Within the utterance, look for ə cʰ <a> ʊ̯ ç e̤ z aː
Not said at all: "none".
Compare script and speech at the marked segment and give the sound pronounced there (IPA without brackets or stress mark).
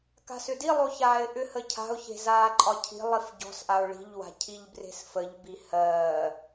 a̤